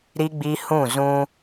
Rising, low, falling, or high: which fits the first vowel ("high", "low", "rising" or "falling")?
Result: high